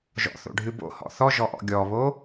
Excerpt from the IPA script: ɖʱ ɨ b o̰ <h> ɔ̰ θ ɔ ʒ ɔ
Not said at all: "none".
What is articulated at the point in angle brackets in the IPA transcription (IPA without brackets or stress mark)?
h